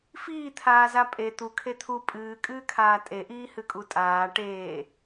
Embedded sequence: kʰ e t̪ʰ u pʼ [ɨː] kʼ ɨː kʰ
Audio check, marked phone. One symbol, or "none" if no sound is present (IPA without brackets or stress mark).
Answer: ɨː